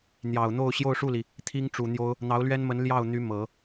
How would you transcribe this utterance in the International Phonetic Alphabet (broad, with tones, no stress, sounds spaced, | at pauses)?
n̪ j ɑ˨˩ ʊ̯ n̪ o˥˧ ʊ̯ ɕ j o˥˧ ʊ̯ ʂ u˥˩ l i˩ | t̪ʰ i˥ ŋ ʈ͡ʂ u˨˩ n̪ j o˥ ʊ̯ | n̪ ɑ˧˥ ʊ̯ l ɥ ɛ˥ n m ə˧˥ n l j ɑ˥˩ ʊ̯ n̪ y˧˥ m ɤ˨˩˦